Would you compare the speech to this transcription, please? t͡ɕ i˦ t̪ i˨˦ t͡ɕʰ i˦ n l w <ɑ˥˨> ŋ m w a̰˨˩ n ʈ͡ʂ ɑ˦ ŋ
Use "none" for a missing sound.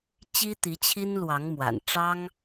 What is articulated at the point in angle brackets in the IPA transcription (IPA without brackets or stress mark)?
ɑ˨˦